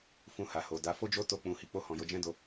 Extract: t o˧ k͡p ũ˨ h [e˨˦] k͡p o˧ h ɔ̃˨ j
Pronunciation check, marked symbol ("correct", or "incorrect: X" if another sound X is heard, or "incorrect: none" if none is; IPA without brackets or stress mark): incorrect: i˨˦